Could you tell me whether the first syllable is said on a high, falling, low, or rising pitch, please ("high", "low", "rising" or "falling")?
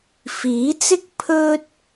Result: rising